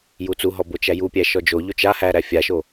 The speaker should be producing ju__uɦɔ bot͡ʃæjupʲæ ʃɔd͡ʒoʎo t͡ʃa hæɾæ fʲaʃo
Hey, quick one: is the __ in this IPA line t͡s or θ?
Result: t͡s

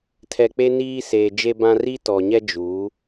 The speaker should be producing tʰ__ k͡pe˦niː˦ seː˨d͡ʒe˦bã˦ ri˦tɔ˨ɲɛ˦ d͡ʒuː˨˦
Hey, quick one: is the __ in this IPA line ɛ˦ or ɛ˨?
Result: ɛ˨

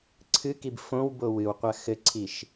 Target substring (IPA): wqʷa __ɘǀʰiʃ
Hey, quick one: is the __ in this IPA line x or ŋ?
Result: x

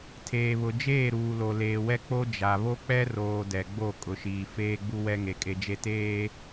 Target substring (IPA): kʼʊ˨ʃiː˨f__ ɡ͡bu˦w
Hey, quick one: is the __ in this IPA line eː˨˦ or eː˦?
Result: eː˦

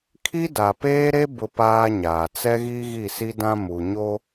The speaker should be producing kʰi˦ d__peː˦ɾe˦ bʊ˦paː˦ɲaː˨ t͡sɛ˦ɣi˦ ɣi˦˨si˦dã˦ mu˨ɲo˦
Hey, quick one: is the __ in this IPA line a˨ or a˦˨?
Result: a˨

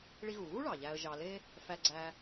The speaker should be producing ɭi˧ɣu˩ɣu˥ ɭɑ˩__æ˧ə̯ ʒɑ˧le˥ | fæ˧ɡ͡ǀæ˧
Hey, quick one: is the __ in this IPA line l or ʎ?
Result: ʎ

